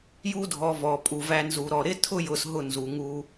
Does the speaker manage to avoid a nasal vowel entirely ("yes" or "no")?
yes